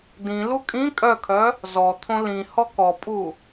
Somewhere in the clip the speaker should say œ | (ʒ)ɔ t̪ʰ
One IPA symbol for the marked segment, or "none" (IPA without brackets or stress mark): z